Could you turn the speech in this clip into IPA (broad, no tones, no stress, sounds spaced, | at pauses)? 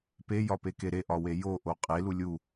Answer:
p e j ɒ p e k e ɾ e ʔ ɒ w e j o ʔ o qʼ e l u lʲ u